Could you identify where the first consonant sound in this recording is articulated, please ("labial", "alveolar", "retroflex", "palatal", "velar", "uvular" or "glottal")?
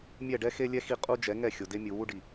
labial